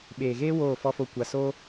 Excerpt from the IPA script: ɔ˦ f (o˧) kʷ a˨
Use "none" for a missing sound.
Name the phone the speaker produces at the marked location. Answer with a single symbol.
o˧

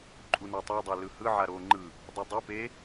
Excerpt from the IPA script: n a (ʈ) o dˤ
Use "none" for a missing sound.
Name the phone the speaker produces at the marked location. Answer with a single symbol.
tˤ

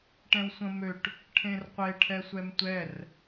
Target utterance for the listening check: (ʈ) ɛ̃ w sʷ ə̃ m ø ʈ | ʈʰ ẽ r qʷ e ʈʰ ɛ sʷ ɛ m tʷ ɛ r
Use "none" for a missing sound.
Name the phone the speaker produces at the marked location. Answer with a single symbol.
ʈ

